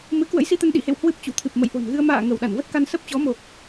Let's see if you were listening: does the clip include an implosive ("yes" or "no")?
yes